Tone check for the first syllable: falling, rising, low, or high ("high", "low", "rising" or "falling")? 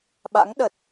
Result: rising